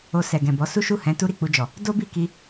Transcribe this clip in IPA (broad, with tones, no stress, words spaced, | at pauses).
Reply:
o˧sɛ˨ ɡɛ̃˨bɔ˨˦ su˦ʃu˦˨hɛ̃˨˦ tu˦ɾi˦˨k͡pu˧d͡ʒɔ˨ | do˦bi˦˨ki˧